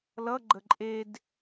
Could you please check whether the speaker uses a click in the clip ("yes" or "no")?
yes